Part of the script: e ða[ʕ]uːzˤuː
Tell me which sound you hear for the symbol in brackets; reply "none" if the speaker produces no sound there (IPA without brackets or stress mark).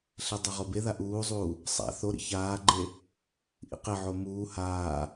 ʔ